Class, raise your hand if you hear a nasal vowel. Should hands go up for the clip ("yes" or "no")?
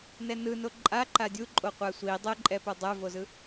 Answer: no